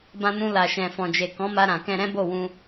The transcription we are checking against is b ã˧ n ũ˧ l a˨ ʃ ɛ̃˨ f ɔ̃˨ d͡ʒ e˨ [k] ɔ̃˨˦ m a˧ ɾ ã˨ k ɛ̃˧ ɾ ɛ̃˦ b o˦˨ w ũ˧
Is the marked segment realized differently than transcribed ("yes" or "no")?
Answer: no